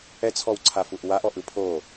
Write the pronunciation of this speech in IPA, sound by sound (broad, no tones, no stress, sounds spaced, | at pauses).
ɛ t͡sʰ ɔ w ǀʰ a f u ʔ w a ʔ ɔ ʔ ɯ pʰ o